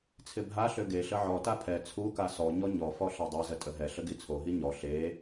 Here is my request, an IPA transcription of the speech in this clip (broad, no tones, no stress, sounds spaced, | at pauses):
t͡sʰ ɪ bʱ a ɬ ø ɡ e ɬ ə ʕ ɔ t a pʰ ɛ t͡sʰ u k a s ɔ ɲ ɔ ɲ ɔ f ɔ ɬ a dˤ ɛ z ə tʼ ə ɦ ɛ ɬ ə ɡ i t͡sʰ o ɦ i ɲ ɔ ɬ e